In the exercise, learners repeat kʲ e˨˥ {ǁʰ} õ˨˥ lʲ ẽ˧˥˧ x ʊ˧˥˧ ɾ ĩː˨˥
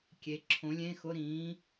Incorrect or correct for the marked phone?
correct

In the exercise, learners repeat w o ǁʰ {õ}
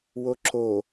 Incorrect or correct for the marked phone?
incorrect: o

